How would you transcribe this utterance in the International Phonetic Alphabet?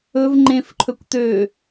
ɵv ŋ͡ǃẽfǃʰɵkʷt̪ø

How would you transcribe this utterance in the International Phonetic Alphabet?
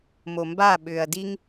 momba ɓʏːɐ̯diŋ

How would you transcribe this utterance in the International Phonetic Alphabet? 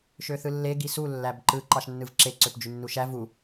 ʃøθɯlːe ɡisu lːæbǃɯ ǃɑʃnːɯvǁe ǀøpd͡ʒynːuʃæ vu

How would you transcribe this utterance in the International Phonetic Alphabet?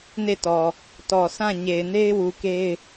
ne˦˨tɔ˨ | tɔ˨ sʰã˦˨ ɲe˨ɪ̯ne˦ɪ̯wu˨ ke˦ɪ̯

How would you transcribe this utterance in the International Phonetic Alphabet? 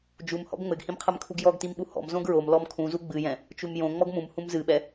d͡ʒumhɔ̰ɡ ŋ͡mɘɡhĩmqʰɛmkʰuɡ jɔɡtimɓu hɔ̰m zõɡɹom lɔmkʰũzu ɡ͡bɨjɛ̃ | t͡ʃumjõ ŋ͡mɔɡmũm hũmzɨɓɛ

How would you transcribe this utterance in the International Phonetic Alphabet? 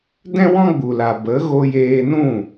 dɛ̃˦wɔ̃˦ ɡ͡bu˨la˨ bə˨˦ ɣo˧jeː˧nũ˦˨

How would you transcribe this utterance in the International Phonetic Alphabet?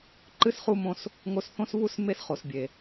ǃɨ˦sχu˦mõ˦s | ŋo˧sθõ˦sβu˦s me˦sχo˨sbʲe˨

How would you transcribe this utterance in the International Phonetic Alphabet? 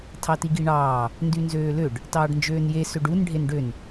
tʰɑtiɡiɳɑː | ndynzøːløɖ | tɑːɖnd͡ʒøːnje søɖun ɖʱenɖøn

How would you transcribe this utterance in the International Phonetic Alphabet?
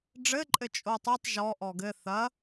ɖ͡ʐɘǃʼɘ t͡ʃʼotˤetˤ ʒɔ ʔɔɡɘ θɐ

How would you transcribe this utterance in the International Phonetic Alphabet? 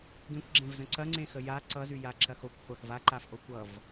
ɡẽkʷɡ͡ǁẽvzə̃ ǀɐŋ͡ǀẽxə ja ǀʌzyjaǁɐ xokʷχʷɐx vaǃafʔo kʷʌv

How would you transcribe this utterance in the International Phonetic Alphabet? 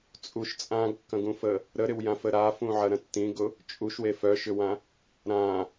t͡sʼuʃ t͡sʼãɡkːɐ̃ɡũfə | ɾəɾɪwjãfə ɾafũʕɐɾɐ̃ tːĩɡʊ | t͡ʃʼuʃwe fœʃʏwã | ɾã

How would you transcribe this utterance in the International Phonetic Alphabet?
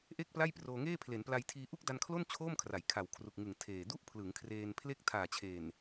ʔe˥˩k̚pla˥˩jproː˧ŋeː˥˩ pʰle˩˦npla˧jtʰiː˧ ʔu˥˩k̚da˧nkʰlo˥˩n t͡ɕʰoː˥˩mkʰra˩˦j kʰa˨˩wkʰru˨˩k̚ŋɯ˨˩ŋ tʰeː˨˩ du˥˩ʔpʰlɯ˩˦ŋkʰreː˧npʰle˥˩k̚ tʰaː˨˩t͡ɕʰeː˨˩n

